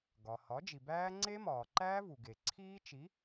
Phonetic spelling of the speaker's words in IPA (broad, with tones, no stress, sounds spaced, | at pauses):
ɡ ɒ˩ h ɒ˩˥ d͡ʒ i˩ b æː˦˥ ŋ͡ǀ e˦˥ m ɒː˩ ǃ æː˦˥ v u˩ ɡ e˩ ǀʰ iː˦˥ t͡ʃ i˩˥